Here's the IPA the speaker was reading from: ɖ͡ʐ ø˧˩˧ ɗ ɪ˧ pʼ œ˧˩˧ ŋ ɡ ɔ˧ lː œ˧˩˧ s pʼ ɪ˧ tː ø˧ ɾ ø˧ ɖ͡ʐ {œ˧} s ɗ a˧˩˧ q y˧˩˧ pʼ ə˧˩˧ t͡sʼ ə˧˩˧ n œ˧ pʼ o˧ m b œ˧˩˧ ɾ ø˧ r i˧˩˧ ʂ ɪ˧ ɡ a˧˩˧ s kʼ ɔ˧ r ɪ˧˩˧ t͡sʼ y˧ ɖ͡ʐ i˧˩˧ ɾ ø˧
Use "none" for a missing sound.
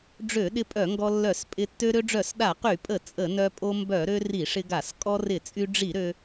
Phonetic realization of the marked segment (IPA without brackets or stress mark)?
œ˧˩˧